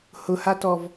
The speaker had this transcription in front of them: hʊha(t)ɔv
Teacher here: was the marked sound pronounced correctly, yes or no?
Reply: yes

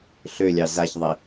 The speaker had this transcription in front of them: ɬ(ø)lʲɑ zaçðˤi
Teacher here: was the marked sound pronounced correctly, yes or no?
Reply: yes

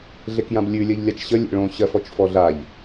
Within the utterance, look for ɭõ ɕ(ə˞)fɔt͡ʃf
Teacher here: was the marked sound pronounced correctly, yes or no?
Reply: no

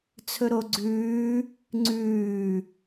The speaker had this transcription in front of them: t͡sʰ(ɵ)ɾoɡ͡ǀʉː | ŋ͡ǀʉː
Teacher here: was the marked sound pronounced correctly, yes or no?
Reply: yes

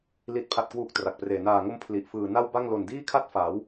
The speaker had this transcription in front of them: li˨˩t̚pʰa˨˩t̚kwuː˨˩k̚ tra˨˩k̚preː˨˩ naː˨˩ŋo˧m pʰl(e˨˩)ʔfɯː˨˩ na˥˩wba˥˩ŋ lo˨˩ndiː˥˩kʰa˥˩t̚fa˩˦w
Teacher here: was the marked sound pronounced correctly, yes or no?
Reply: no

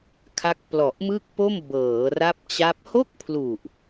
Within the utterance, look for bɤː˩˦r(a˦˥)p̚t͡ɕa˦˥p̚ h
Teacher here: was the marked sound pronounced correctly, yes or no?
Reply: yes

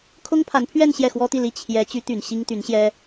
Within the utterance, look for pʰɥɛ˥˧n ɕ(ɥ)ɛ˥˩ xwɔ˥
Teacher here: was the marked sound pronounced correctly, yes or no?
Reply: no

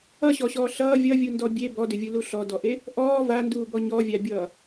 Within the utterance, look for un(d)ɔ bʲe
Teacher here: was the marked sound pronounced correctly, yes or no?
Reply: yes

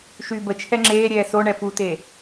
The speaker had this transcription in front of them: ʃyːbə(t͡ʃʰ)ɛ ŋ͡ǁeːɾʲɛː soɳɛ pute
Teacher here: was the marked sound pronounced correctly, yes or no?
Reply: yes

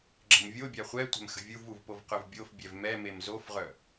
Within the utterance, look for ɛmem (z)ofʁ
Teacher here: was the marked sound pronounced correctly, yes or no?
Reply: yes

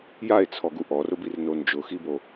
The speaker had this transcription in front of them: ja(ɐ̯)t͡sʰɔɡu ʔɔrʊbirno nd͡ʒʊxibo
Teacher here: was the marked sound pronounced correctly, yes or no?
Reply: no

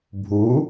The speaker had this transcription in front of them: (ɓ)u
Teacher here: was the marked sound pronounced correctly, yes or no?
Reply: no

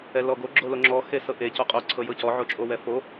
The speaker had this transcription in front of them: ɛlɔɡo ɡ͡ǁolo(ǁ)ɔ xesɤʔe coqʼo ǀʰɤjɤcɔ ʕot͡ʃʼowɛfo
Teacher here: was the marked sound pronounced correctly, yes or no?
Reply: no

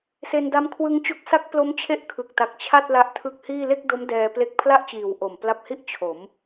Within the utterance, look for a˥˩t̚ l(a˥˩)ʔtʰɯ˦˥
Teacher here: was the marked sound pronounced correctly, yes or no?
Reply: no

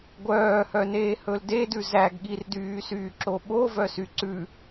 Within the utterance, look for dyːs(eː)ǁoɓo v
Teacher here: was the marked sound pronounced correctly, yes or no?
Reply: no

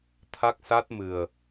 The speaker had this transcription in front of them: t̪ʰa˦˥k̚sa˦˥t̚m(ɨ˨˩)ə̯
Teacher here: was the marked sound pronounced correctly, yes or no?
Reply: yes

